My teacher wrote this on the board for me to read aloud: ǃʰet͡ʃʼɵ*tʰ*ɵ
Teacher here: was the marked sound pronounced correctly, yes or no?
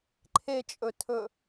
yes